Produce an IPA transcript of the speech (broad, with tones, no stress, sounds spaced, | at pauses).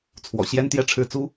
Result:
t͡sʰ w ɔ̰˨˩ ɕ j ɛ˥ n t̪ j ɛ˥˧ ʈ͡ʂʰ ɻ̩˥˩ t͡s u˥